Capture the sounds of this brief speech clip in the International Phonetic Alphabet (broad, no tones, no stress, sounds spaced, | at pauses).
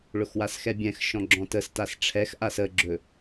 ɭ ʊ x w a s x ɛ bʲ ɛ̃ x ʃ ɔ̃ ɡ͡ǁ ɔ̃ t ə s t a s ʈ͡ʂʰ ɛ x ʔ a s ə ɡ͡ǁ ɵ